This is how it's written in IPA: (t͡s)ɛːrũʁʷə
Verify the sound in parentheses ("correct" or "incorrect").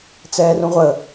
correct